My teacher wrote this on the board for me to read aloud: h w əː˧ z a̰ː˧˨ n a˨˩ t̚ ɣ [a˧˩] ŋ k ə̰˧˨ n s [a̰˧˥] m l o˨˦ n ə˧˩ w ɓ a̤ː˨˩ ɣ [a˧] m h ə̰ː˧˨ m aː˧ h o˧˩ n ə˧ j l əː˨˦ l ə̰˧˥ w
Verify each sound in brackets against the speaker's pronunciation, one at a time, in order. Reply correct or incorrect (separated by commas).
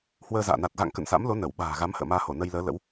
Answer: incorrect, correct, incorrect